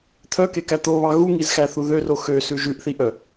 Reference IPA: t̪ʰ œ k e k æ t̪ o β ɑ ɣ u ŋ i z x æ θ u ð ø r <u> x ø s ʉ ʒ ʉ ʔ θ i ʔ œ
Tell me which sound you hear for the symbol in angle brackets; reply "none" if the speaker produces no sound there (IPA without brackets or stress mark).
o